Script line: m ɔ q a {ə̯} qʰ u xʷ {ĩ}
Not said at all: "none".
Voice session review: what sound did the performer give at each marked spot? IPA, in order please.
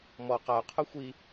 ʊ̯, i

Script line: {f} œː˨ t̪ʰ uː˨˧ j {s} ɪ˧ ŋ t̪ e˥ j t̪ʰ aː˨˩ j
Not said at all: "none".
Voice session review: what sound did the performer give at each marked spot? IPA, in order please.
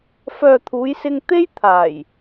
f, s

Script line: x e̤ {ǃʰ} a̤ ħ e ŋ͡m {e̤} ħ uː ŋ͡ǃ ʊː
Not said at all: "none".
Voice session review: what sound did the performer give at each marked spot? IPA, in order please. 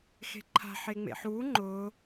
ǃʰ, ḛ

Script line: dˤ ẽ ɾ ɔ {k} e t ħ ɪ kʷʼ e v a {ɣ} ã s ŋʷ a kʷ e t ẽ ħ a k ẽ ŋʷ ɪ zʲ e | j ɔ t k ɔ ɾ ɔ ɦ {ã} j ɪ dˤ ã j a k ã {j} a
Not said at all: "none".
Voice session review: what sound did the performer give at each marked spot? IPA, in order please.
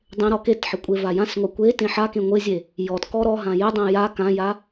k, j, ã, j

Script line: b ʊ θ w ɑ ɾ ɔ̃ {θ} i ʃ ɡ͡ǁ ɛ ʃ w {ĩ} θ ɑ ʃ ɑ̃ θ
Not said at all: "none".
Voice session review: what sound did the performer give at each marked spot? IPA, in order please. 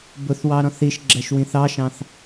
θ, ĩ

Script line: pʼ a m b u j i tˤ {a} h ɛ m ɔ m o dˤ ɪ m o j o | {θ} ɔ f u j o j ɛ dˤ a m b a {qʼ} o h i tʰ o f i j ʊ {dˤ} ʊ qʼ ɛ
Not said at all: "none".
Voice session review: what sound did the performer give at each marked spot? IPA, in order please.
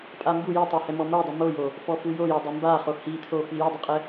a, f, χ, dˤ

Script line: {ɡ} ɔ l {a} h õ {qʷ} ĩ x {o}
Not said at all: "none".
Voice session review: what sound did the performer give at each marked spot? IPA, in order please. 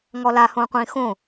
ŋ, a, qʷ, õ

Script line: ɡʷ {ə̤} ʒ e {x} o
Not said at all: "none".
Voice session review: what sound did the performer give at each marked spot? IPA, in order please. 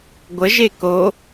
ə, k

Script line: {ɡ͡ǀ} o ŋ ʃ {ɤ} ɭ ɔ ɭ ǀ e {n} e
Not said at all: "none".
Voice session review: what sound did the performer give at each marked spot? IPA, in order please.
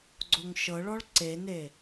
ɡ͡ǀ, ɤ, n

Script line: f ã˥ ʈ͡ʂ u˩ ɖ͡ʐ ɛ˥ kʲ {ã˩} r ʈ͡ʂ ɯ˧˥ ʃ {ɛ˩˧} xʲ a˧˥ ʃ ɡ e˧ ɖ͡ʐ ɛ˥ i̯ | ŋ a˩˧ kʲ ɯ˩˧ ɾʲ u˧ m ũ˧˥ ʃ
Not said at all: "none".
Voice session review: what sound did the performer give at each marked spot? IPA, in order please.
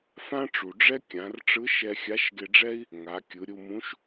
ã˩˧, ɛ˧

